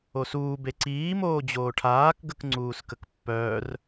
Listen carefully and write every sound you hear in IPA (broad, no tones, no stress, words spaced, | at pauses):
osuː beǀiː moːd͡ʑoːʈʰaːk ɡəkŋ͡ǀuːskəkpːœːr